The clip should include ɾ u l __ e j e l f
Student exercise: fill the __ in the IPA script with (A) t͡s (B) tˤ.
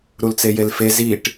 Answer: A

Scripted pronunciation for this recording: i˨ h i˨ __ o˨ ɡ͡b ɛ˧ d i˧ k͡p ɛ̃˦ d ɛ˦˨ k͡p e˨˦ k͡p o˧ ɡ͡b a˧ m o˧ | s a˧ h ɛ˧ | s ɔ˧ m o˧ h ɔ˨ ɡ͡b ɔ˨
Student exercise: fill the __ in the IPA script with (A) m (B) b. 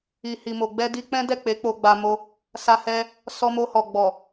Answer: A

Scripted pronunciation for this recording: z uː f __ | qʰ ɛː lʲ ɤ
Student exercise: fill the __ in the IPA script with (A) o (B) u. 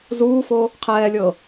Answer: A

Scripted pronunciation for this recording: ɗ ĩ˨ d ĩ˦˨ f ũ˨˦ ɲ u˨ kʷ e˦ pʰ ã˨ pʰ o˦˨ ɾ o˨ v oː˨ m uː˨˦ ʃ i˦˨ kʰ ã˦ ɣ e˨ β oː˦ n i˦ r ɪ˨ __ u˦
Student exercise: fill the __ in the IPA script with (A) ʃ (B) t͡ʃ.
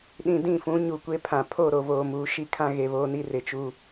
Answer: B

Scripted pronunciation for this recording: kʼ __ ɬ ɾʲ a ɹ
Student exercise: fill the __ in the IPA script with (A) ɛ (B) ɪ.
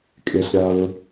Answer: B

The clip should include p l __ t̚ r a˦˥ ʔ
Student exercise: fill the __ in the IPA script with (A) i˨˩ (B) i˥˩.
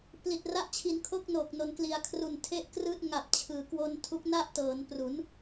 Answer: A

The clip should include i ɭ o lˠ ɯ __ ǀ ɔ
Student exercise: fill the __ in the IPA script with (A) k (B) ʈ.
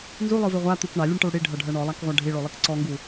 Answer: A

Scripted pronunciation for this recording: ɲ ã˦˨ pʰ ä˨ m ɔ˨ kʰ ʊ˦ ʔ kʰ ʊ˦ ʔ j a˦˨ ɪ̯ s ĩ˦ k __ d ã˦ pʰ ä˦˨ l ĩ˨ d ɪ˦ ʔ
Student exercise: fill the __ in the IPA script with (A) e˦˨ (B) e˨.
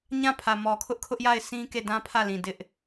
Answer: A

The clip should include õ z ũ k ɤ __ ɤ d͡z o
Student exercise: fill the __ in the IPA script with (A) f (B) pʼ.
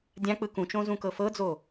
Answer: A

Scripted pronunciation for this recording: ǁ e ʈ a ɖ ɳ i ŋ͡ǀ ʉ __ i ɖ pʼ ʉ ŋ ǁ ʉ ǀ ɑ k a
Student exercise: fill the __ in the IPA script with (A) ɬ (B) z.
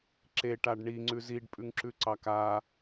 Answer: B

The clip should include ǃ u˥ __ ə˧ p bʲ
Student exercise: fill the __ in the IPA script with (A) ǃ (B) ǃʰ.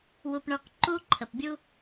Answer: B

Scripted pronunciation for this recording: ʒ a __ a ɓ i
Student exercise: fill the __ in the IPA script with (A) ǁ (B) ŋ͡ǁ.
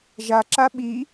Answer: A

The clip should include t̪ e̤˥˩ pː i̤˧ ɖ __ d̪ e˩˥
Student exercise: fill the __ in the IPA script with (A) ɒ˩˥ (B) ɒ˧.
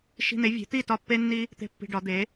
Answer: A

